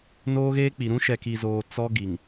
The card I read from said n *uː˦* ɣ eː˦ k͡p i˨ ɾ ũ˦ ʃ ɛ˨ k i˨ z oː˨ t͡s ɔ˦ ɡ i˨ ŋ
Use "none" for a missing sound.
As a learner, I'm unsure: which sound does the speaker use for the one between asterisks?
oː˦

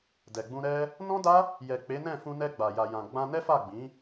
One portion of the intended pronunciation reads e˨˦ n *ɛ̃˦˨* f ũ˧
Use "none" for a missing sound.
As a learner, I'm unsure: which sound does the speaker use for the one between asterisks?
ɛ̃˦˨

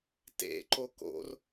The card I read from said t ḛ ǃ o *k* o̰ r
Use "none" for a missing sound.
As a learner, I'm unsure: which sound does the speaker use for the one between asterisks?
k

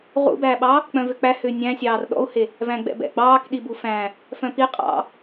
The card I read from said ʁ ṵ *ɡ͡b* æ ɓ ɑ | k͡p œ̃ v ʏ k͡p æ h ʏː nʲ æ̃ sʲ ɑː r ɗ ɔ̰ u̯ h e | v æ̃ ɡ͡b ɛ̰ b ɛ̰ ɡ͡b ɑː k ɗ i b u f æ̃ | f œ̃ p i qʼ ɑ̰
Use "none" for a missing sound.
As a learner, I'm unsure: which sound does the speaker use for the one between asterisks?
b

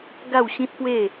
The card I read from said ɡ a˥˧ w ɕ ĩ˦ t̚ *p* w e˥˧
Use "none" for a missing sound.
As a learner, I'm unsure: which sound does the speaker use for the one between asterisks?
p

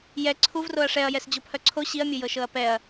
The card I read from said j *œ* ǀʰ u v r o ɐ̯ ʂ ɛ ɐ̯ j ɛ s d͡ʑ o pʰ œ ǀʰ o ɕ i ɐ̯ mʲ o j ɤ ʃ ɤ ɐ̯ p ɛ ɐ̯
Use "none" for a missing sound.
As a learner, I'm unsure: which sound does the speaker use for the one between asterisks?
ɛ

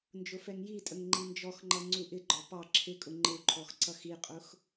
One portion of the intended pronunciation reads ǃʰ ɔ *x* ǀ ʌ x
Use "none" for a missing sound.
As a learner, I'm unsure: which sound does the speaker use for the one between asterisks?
x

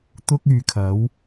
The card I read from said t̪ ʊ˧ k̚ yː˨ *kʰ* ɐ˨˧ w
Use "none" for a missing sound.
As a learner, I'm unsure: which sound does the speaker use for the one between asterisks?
kʰ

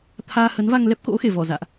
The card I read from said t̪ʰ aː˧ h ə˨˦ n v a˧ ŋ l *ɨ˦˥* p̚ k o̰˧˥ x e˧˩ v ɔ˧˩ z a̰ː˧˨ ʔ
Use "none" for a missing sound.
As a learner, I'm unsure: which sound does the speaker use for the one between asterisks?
ɛ˦˥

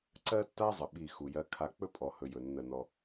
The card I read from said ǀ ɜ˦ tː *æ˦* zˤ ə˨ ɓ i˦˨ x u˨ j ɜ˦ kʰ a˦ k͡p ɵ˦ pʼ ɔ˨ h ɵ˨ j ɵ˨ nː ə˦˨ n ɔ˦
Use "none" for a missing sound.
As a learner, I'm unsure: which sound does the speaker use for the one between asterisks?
a˦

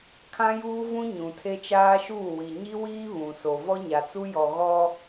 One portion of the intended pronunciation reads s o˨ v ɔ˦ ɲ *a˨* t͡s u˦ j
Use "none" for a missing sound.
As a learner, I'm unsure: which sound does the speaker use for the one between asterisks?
a˨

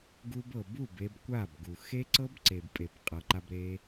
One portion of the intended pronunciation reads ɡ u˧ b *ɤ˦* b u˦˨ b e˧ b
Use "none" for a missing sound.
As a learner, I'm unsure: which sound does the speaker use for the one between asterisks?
ɤ˨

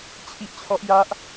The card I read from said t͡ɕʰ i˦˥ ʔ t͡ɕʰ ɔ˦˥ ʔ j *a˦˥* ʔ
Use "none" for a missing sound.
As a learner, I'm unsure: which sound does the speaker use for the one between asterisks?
a˦˥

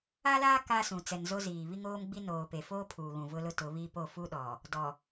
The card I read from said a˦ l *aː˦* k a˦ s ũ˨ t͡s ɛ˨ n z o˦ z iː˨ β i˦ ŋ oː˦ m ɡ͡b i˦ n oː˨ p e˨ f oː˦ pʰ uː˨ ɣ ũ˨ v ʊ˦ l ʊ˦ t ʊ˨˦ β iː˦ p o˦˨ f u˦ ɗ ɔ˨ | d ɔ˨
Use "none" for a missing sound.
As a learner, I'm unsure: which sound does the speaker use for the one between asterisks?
aː˦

